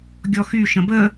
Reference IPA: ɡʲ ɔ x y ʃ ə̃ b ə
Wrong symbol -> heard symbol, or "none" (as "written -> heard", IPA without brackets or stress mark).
none